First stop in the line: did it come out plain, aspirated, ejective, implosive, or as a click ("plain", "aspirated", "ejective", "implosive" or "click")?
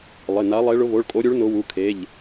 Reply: ejective